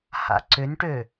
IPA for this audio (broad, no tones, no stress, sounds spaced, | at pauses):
h a̰ ǀ ʏ n ʈ ø